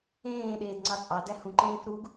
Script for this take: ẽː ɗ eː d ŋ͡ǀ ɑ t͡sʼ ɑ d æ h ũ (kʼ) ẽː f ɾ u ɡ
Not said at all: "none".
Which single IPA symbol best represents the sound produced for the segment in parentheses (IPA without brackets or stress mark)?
ǃ